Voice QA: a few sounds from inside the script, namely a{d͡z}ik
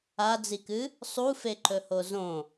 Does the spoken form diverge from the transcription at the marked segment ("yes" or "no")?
no